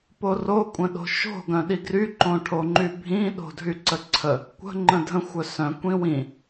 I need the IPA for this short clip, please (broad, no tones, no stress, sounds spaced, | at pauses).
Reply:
p o r o kʷʼ ə̃ ɗ o̤ ʃ o̤ ɡ œ̃ ɗ i ɡ r y ǃ õ ʈʰ o ŋ͡ǃ y bʱ ĩ ɗ o̤ dʱ y ǀ ə ǀʰ ə | kʷ ə̤ ŋ͡ǃ ə̃ dʱ ə̃ xʷ œ s œ̃ kʷ ĩ w ĩ